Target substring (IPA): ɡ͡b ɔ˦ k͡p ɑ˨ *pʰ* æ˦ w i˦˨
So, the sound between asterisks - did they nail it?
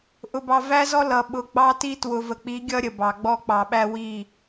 no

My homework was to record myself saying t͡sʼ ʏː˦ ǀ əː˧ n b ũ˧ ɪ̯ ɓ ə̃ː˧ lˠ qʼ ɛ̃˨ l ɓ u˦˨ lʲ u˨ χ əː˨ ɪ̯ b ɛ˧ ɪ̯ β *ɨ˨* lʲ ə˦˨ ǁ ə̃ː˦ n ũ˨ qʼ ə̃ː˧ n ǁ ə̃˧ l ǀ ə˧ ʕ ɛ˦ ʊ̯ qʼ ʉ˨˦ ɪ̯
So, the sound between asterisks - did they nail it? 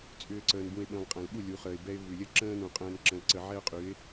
no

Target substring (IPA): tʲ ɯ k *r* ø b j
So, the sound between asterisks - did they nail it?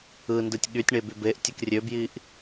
no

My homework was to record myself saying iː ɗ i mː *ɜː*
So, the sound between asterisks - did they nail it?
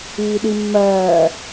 yes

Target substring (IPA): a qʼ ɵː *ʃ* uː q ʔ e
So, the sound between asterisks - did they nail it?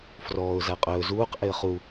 no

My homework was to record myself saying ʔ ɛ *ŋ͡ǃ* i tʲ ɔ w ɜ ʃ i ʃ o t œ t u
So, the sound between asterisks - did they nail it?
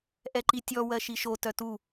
no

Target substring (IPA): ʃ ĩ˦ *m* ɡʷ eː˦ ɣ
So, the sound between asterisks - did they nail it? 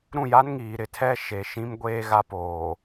yes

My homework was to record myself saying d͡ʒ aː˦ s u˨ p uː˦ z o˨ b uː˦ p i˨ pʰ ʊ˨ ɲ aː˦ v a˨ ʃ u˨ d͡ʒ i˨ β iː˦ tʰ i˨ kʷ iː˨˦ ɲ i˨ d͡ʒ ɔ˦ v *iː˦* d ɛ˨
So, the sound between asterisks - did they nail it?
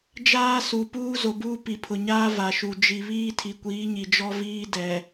yes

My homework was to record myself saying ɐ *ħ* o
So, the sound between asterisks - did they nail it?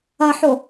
yes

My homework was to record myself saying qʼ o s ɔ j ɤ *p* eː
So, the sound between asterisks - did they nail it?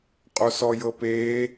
yes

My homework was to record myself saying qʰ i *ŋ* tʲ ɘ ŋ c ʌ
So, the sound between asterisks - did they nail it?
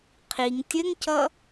yes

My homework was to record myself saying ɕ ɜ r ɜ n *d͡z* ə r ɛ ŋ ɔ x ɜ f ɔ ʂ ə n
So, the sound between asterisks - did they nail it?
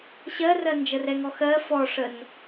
no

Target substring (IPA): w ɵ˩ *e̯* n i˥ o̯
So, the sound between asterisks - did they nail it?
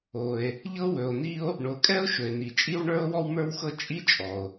no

